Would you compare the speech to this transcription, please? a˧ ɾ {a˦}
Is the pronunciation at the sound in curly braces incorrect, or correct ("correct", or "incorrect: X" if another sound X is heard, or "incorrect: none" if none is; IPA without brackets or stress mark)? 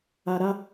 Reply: correct